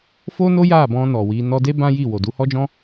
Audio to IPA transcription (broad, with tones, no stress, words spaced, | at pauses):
fo˦no˦ ja˦˨bɔ̃˧ nɔ˨ wi˧ nɔ˧de˦ bã˦ji˦˨wo˨ du˨˦hɔ˦d͡ʒɔ̃˦